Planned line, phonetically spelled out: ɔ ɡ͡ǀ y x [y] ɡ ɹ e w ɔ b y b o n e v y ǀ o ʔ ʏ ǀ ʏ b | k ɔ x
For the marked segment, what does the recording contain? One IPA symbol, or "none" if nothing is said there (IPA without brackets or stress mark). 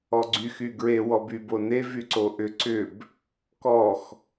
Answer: y